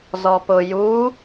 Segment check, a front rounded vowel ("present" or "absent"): absent